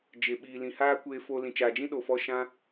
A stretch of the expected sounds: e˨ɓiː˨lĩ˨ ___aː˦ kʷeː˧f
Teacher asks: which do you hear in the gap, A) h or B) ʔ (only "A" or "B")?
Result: A